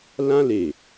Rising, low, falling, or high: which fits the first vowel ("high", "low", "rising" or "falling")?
high